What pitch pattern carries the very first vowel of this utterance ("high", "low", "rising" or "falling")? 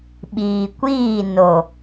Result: low